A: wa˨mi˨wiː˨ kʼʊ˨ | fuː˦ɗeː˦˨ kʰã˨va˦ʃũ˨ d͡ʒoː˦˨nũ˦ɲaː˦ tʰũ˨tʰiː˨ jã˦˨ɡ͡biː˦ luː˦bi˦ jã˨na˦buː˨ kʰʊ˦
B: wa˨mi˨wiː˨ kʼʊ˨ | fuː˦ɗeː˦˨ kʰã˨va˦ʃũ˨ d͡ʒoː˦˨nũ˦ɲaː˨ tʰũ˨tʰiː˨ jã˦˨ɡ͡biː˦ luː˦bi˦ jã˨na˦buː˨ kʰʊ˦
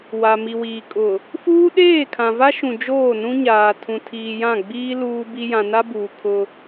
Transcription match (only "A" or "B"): B